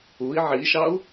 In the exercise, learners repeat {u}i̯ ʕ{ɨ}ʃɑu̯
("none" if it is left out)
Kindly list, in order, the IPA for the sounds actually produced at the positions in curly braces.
u, i

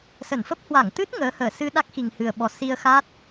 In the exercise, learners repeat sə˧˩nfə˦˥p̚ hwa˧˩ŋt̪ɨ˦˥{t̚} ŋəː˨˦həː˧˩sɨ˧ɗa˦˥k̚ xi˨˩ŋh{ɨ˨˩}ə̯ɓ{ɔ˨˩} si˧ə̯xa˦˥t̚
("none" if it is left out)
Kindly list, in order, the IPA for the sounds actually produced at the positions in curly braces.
t̚, ɨ˨˩, ɔ˨˩

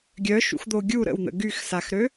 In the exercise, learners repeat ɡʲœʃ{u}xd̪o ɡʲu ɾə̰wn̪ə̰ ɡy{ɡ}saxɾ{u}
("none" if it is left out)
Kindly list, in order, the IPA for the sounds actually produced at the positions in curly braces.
ṵ, x, ø

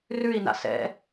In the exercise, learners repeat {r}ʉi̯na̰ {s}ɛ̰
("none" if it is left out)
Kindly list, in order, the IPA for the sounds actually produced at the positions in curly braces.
r, s

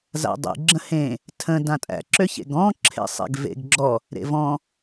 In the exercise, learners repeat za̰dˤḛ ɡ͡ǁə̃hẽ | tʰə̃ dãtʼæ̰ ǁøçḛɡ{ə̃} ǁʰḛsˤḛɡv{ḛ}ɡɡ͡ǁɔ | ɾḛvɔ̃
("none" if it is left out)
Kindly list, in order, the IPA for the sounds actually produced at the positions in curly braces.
ɔ̃, ḛ

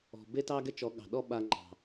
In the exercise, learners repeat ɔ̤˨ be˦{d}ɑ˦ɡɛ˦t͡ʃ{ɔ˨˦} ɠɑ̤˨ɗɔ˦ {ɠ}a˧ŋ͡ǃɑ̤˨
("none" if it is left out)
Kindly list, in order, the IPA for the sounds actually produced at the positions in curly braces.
t, ɔ˨˦, ɓ

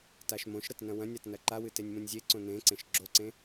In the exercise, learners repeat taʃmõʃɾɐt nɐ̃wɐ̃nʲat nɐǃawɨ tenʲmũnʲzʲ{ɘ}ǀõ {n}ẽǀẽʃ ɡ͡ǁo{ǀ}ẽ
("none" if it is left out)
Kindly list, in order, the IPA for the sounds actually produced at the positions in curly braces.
e, n, ǀ

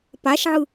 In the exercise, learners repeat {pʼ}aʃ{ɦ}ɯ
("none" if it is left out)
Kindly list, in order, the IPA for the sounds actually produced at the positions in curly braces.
p, ʕ

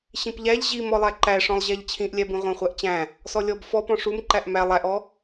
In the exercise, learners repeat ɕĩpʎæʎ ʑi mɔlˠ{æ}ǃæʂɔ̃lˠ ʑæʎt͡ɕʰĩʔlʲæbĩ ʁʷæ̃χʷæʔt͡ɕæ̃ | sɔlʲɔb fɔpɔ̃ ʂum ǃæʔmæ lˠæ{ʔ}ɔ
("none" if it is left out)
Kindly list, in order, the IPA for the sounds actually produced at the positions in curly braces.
æ, ʔ

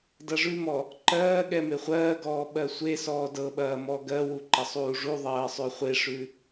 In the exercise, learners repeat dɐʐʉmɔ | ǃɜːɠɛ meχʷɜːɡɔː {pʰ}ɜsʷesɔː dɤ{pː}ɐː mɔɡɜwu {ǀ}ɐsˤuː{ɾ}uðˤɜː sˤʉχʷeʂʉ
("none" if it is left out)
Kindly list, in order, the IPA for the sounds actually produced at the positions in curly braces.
ɓ, ɓ, ǃ, ʐ

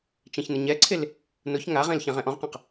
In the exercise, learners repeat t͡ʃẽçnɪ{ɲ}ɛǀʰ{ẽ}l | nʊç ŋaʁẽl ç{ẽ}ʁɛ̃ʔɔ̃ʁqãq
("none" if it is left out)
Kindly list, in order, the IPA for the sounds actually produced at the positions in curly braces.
ɲ, e, ẽ

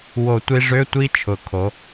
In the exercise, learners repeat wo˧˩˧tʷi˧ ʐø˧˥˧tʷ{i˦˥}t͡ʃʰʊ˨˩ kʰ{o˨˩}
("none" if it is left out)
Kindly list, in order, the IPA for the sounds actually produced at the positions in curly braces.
i˦˥, o˩˧

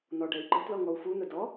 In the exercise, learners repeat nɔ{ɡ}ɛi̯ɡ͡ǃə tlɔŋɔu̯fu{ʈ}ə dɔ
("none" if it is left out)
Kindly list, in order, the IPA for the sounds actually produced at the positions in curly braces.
ɖ, n̪

